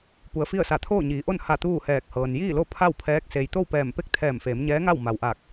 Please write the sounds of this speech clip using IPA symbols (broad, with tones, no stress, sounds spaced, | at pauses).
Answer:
p u˩˧ ə̯ f i˥˨ ə̯ s a˧˩ t̪ʰ oː˥˨ ɲ iː˩˧ ʔ o˥˨ n h a˧˩ t̪ uː˥˨ h ɛː˧˩ k̚ h ɤː˩ n j iː˥˨ l o˥˨ pʰ a˥˨ w pʰ ɛː˧˥ k̚ s e˩ j t̪ o˥˨ w p ɛː˧˩ m p e˥˨ k̚ t̪ʰ ɛː˧˩ m f eː˩˧ m ɲ ɛː˧˥ ŋ a˥˨ w m a˩ w ʔ aː˧˩ k̚